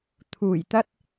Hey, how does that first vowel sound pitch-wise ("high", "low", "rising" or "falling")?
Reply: low